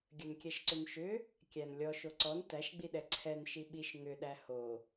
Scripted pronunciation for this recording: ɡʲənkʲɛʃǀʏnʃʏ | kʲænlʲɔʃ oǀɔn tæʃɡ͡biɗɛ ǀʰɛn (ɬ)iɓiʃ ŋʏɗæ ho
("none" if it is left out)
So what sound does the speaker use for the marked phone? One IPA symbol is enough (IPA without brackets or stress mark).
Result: ʃ